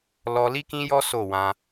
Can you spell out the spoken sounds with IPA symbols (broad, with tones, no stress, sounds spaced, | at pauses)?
l ɔ˧ l i˦ k ĩ˦ j ɔ˦ s o˦˨ w ã˧